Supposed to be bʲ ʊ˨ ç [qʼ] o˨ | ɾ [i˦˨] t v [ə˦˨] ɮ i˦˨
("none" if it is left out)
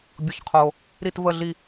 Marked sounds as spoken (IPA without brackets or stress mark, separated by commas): qʰ, i˦˨, ə˦˨